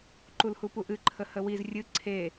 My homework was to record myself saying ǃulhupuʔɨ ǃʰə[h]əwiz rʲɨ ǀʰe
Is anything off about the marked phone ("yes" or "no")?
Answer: no